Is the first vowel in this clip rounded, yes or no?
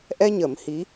no